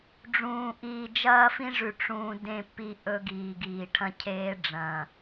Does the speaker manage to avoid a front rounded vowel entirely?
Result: yes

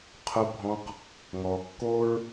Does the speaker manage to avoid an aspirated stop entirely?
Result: no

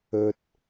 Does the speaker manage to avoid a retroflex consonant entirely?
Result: yes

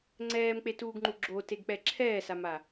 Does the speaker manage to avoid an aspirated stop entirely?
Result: no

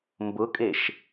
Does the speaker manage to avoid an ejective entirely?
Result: no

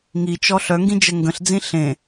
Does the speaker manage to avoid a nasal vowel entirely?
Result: no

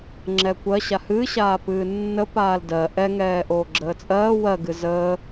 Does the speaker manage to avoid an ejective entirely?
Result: no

